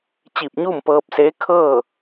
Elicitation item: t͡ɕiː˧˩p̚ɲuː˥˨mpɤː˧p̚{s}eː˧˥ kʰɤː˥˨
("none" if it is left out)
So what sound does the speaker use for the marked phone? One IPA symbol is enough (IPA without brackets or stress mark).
s